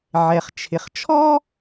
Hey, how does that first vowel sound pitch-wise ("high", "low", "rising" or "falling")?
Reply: low